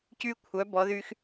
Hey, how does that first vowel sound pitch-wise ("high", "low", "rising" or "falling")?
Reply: high